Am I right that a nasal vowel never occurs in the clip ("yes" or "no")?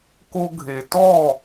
yes